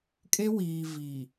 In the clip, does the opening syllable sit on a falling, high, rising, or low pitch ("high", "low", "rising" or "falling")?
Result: high